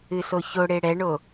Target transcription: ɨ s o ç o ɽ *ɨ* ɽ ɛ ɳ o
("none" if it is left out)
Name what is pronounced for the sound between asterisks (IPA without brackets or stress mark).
e